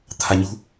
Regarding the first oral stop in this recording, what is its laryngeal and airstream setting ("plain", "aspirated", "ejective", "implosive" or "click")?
aspirated